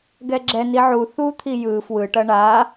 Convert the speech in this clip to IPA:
ɡ ɛ ɡ͡ǁ ɛ n i ʕ u θ u t̪ʰ i j ɯ f w ɯ ʈ ʌ ɳ a

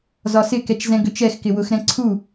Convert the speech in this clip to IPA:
z ɒ s ɪ k ɛ t͡ʃ z ɛ̃ ɡ ø t͡ʃ ɛ x k ɪ w ʊ x ɾ ɛ̃ ǀʰ u

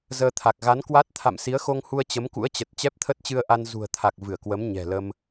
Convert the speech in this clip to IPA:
z əː˧ t̪ʰ a˨˩ k̚ ɣ a˨˦ n k w a˦˥ t̚ t̪ʰ a̰˧˨ m s i˨˦ ə̯ x o˧ ŋ h u˧ ə̯ t͡ɕ ə˨˦ m k ṵ˧˥ ə̯ t͡ɕ ə˨˩ t̚ t͡ɕ ɛ˦˥ p̚ t̪ʰ ə˦˥ t̚ t͡ɕ ɨ˧ ə̯ ʔ a˧ n z ṳ˨˩ ə̯ t̪ʰ a˨˩ k̚ v ɨ˧˩ ə̯ k w ə˨˦ m ɲ ɛ̤˨˩ l ə˧ m

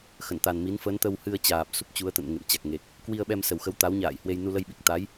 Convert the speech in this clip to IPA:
x ə˧˩ n t̪ a˨˩ n m i˨˦ n f ə˨˦ n t̪ ə˧ w h ɨ˧ ə̯ t͡ɕ aː˨˩ p̚ s u˦˥ p̚ t͡ɕ u˨˦ ə̯ t̪ ə̰˧˨ n ŋ ḛ˧˨ m t͡ɕ a˨˩ k̚ ŋ e˨˩ k̚ | k w i˧ ə̯ ɓ ɛ˧ m s ə˨˩ w x ə˨˦ w t̪ a˨˦ w ɲ a̰ː˧˨ j h w e˧ j n u˧ l ə˧ j ɓ i˨˩ k̚ t̪ a˨˦ j

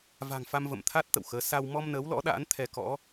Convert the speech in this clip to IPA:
v a̤˨˩ ŋ f a˧ m v ə̰˧˨ m t̪ʰ a˦˥ t̚ t̪ ə̰˧˨ w x əː˨˦ s a˧ w m ɔ˧ m n əː˨˦ w l ɔ̰˧˥ ɗ a̰ː˧˥ n t̪ʰ ɛ˧ k ɔ̰˧˥

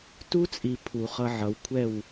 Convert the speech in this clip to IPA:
t u˦ t͡sʼ i˨ pʰ u˨ χ ʌ˧ ʕ ʌ˨ w kʷʰ ɛ˦˨ w

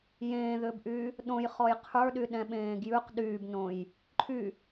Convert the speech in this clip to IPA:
j ẽː ð ʏ b ʔ y | ɗ õ j χ ɔ j qʰ ə˞ ɗ y ɗ ɛ̃ ɓ ẽː ɡ j ʉ q ɗ yː b n õ j | ǃʰ y

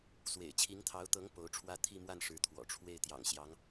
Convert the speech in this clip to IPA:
s w ḛ˨˩ ɪ̯ t͡ɕʰ i˧˥ ŋ t̪ʰ ɑ˧˥ ʊ̯ t̪ ɤ˧˥ ŋ p o˧˥ ʊ̯ ʈ͡ʂʰ w ä˥ t̪ʰ i˥˧ m w a˥˩ n ʂ ɻ̩˧˥ t̪ʰ w ɔ̰˨˩ ʈ͡ʂʰ w e˥˩ ɪ̯ t̪ j ɑ̰˨˩ ŋ ɕ j ɑ˧˥ ŋ

